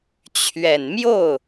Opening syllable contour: low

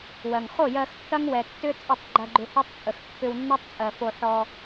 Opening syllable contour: low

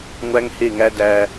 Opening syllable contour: high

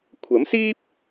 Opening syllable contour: rising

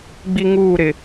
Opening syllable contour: high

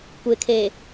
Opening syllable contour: low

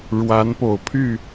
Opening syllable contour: rising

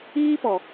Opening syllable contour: high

